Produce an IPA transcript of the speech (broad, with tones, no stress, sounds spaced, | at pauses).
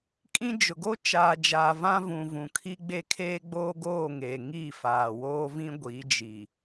kʼ ĩ˦ d͡ʒ ʊ˨ ɡ o˦ t͡ʃ aː˨ d͡ʒ aː˨ v ã˦ v ũ˨ v ũ˨ kʰ i˦ ɡ͡b e˦ kʰ eː˦ ɡ͡b oː˦ ɡ oː˦˨ ŋ e˨ ŋ iː˦˨ f aː˨ w oː˦ v ĩ˦ ɡʷ iː˨˦ d͡ʒ i˨